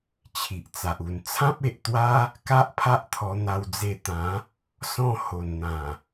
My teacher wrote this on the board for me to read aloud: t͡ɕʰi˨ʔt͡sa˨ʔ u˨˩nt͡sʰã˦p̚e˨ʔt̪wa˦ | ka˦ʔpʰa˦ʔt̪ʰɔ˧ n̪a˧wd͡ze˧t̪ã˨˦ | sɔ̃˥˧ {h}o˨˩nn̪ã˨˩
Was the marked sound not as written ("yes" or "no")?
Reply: no